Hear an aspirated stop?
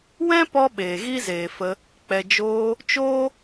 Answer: no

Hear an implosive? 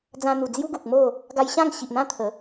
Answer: no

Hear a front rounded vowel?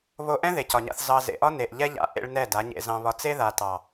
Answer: no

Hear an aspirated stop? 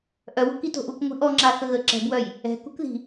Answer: no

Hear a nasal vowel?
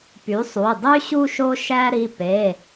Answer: no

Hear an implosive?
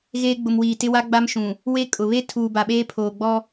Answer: yes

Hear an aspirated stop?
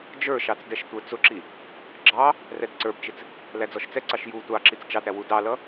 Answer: no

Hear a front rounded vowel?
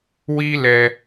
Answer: no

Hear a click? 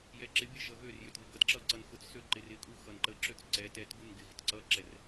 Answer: yes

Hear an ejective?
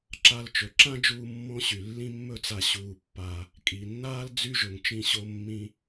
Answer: yes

